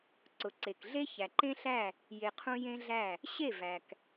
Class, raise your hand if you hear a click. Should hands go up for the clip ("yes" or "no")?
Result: yes